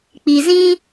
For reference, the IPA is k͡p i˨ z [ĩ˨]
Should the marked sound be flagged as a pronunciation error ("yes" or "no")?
yes